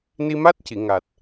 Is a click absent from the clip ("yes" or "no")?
yes